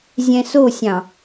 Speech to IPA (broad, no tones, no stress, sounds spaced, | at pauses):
zʲ ɛ̃ s o sʲ ɑ̃